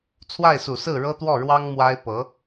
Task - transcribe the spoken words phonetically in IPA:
t͡sʰ w a˥˩ ɪ̯ s u˨˩ s ɹ̩˥˩ ɻ ɤ˥ t̪ w ɔ˥˩ ɻ w ɑ˥ ŋ m w a˥ ɪ̯ p ɤ˧˥

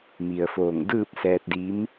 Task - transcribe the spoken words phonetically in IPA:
m i˩ ə̯ f oː˧˩ ŋ d ɯː˥˨ p̚ s ɛː˧ t̚ d i˧˥ m

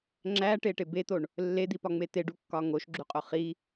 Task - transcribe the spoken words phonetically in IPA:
ŋ͡ǁ æ ʈ e ʈ e b e t̪ o ɳ | lː e d̪ i p ɒ ŋ͡m e t̪ e ɖ u kː ɒ ŋ o ʃ ɡ͡ǁ u qʼ o χ i

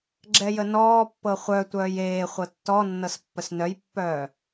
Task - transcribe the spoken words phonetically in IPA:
ɡ͡ǁ ɛ j ə n ɔː pː ɤ χʷ œ tʷ œː j eː χʷ ɤ tː ɔ nː ɤ s pː ə s n œ j pː œː

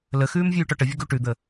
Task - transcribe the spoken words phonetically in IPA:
l ə x ʉː m vʲ ʉː ʈ ɔ ʈ ə vʲ ʌ ɡ u ʈ ʉ d̪ ə

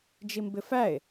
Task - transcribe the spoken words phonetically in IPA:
d͡ʒ i m b ɪ f æ e̯

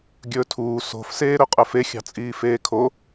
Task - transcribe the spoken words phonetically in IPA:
ɡʲ ɵː tʰ uː s o̤ f s eː ɾ ɵ qʼ œ f e xʲ ɑ̤ t͡sʼ iː f eː kʰ o

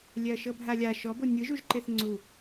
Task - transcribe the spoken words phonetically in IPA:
lʲ ɛ ɐ̯ ʃ ɤ bʱ a lʲ a ʃ ɔ b o nʲ ɯ ʒ u ʒ ǃ e θ ŋ͡ǀ u

